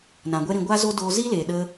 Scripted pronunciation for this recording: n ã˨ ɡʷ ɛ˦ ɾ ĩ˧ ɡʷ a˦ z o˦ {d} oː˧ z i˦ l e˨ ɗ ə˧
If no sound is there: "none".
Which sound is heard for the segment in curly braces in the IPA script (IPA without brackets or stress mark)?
d